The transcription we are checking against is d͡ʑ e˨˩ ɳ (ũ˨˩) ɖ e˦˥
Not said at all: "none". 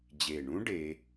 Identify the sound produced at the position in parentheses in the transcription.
ũ˦˥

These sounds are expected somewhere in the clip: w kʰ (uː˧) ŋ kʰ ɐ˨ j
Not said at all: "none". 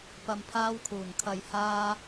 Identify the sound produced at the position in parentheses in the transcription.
uː˨˩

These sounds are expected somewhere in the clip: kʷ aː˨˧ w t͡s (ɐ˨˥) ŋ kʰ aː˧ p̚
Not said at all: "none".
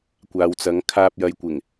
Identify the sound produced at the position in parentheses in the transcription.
ɐ˨˥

